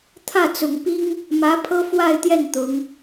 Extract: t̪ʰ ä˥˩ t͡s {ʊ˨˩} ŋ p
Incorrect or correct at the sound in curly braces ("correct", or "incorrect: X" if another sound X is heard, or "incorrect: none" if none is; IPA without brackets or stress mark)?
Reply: correct